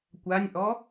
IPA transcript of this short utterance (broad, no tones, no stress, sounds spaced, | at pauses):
kʷ a nʲ ʔ ɔ